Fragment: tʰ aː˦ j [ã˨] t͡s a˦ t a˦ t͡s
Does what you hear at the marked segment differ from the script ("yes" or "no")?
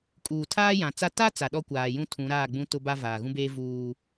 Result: no